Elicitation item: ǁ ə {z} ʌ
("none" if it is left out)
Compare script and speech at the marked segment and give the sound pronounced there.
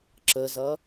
z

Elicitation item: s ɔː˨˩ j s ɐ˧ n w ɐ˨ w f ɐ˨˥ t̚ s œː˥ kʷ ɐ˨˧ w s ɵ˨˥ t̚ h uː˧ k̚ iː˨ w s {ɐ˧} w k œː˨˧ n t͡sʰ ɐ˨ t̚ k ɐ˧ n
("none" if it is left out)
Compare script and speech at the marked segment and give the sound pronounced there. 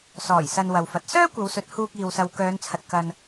ɐ˨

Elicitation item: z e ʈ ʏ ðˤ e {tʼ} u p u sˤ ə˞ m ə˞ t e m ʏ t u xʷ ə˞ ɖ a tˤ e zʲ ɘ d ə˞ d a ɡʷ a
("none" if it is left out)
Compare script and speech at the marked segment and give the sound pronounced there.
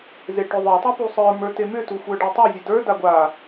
tˤ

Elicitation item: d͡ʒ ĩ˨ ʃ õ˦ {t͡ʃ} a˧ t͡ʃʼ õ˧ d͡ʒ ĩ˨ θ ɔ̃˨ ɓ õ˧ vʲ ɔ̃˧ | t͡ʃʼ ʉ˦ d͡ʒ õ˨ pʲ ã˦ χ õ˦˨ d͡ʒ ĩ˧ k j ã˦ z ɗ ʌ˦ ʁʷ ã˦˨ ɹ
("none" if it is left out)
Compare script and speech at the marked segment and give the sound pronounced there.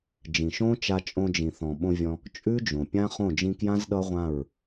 t͡ʃ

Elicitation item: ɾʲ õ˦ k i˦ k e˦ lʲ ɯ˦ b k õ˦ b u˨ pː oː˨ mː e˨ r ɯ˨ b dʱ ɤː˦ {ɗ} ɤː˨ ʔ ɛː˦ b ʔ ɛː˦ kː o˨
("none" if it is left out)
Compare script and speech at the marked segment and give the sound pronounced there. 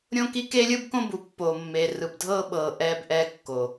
ɓ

